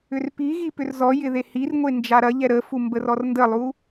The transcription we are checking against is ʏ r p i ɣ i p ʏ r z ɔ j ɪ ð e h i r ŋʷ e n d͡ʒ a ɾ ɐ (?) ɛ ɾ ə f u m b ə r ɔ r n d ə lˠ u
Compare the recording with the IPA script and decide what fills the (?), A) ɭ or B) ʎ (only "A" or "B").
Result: B